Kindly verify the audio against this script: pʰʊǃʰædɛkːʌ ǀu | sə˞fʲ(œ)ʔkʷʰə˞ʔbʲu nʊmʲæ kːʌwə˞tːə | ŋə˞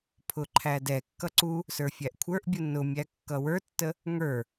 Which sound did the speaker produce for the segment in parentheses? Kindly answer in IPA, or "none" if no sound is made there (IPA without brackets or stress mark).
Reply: æ